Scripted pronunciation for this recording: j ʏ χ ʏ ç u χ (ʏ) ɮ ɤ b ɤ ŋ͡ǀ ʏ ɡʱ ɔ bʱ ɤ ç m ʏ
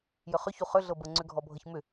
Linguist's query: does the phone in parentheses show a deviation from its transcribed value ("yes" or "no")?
no